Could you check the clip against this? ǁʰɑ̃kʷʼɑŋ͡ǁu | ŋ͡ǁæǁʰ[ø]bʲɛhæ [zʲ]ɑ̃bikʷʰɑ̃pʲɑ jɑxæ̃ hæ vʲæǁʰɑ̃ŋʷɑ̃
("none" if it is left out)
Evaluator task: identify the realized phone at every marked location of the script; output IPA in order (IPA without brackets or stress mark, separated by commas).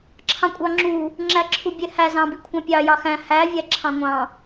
u, z